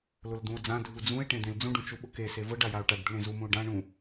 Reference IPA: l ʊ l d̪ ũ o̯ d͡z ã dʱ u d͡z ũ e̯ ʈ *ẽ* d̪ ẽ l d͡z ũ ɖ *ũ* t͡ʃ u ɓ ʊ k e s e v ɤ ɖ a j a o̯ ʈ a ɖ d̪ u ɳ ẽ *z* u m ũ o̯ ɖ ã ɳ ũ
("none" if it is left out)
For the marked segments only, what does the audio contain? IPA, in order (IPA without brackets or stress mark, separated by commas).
ẽ, ũ, z